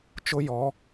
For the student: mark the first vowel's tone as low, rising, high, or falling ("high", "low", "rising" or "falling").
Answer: high